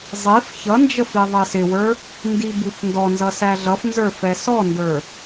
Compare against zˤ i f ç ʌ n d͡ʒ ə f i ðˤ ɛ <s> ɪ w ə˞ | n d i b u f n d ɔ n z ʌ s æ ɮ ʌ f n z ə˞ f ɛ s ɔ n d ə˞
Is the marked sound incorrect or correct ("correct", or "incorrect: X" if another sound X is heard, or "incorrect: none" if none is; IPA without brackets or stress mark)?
correct